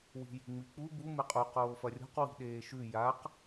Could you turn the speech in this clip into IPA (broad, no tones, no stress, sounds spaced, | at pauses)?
w i̤ j i̤ ŋ͡m i k͡p u b u m e qʼ u q oː f ɐ rʲ o̤ q w i̤ ɗ eː ʃ ʉ j a q